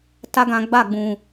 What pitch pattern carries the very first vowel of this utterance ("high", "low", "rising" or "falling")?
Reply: high